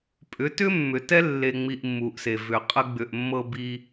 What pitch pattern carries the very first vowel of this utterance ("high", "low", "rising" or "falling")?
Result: rising